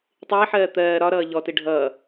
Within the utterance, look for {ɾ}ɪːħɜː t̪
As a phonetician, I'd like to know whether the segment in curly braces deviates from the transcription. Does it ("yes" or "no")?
yes